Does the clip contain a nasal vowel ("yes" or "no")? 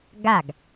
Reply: no